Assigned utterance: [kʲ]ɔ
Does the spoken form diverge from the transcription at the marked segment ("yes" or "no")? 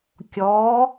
no